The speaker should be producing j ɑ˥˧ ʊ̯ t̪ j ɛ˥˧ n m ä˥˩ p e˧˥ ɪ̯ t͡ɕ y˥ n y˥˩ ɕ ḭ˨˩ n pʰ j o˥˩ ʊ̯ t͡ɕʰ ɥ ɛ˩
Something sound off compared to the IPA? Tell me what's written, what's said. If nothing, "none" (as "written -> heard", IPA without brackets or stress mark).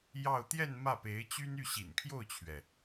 none